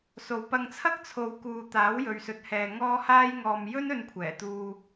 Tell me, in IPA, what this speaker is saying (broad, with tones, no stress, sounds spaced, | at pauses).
s o˨ w p ɐ˧ ŋ t͡sʰ ɐ˥ k̚ t͡sʰ o˨˧ w k uː˨ t̪ aː˨˥ w j ɵ˨ ɥ s ɵ˨˥ t̚ h ɛː˨ ŋ ɔː˥ h aː˥ j ŋ ɔː˨ m j ɵ˥ n ɵ˧ n kʷʰ ɛː˨˩ t̪ uː˧